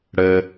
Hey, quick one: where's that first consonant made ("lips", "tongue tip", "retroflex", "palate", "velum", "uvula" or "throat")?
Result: retroflex